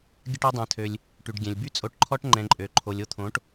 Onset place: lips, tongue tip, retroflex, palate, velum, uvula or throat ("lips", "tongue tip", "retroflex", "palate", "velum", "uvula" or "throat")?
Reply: velum